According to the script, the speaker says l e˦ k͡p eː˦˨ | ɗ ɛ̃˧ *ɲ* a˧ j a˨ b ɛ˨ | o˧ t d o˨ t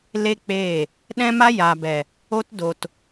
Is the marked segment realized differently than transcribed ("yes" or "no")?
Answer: yes